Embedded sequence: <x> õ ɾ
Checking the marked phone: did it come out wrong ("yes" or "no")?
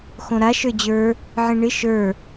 no